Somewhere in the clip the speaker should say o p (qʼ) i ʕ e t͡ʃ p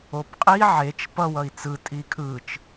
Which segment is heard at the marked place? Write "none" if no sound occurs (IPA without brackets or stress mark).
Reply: qʼ